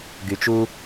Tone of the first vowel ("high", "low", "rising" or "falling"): low